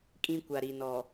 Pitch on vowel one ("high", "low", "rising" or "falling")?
high